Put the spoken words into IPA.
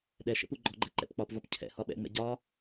ɗ ɛ ʃ ɛ̰ p u ɡ͡ǃ ɔ ɡ͡ǃ ɛ ǃ ɛ̰ p k͡p ɒ p v ɒ p cʰ ɛ̰ h ɒ ɓ ɛ̰ ŋ͡m ɛ̰ ɟ ɒ

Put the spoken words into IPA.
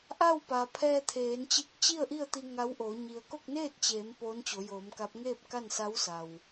ʔ a˥˨ w p a˩ pʰ ɛː˧ t̪ʰ eː˩˧ n t͡ɕ i˧ k̚ t͡ɕ i˥˨ ə̯ ʔ i˥˨ ə̯ t̪ i˧ ŋ a˧˥ w ʔ oː˩˧ ɲ i˩ ə̯ k o˥˨ k̚ n eː˥˨ t̚ t͡ɕ eː˩˧ m p oː˧˥ n t͡ɕ o˩˧ j oː˩˧ m k a˧˥ p̚ ŋ eː˥˨ p̚ k a˥˨ n s a˧˥ w s a˩ w

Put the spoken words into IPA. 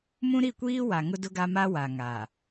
m ũ˦ ɾ i˦˨ kʷ iː˦ w a˨ ŋ ʊ˦ d ʊ˦ ɡ a˦ m a˦ w a˨ ŋ a˨

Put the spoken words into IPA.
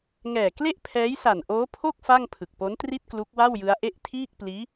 ŋ ɛː˨˩ k l e˥˩ ʔ pʰ ɛː˦˥ j s a˨˩ n ʔ oː˦˥ pʰ o˥˩ k̚ f a˥˩ ŋ pʰ ɯ˨˩ k̚ p o˦˥ n t r i˥˩ t̚ k l u˦˥ k̚ w a˥˩ w j ɯ˦˥ a̯ ʔ e˥˩ ʔ tʰ iː˥˩ k̚ p l iː˦˥

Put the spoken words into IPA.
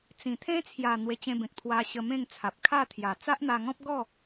t͡s ĩ˨˩ t̪ʰ ẽ˦ t͡sʰ j a˨˩ n̪ w e˧ t͡ɕ ẽ˧ b ẽ˨ k̚ t̪ʰ w a˧ ɕ ə˧ m ẽ˥˧ ŋ t͡sʰ a˨ p̚ kʰ a˥˧ t̪ʰ j a˨˩ t͡s a˦ ʔ n̪ a˧ ŋ ɔ̃˦ p̚ ɡ ɔ˥˧

